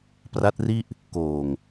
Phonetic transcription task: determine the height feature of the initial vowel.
low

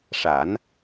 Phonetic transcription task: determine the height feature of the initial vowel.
low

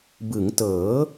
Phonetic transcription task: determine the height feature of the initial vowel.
high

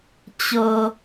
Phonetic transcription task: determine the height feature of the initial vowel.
mid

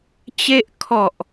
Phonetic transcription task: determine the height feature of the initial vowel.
mid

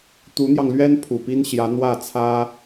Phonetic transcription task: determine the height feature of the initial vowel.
high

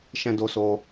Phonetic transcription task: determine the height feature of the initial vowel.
mid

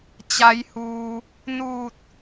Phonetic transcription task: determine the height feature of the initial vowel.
low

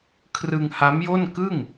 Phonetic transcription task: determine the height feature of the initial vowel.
high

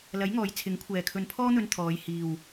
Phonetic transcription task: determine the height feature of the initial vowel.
low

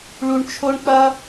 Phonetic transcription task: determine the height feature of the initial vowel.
high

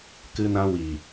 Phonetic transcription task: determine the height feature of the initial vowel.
high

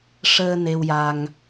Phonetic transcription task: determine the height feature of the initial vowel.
mid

